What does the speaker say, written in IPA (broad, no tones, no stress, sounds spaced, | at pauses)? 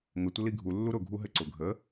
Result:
ŋ ə tʷ ə l i ɡʱ u lː u ɾ ʊ ɡʱ u ɦ ɘ ǀ ʊ ɡʱ ə